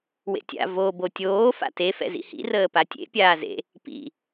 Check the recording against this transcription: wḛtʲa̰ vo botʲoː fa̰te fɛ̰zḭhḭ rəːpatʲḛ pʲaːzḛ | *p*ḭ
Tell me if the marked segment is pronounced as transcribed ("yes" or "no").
yes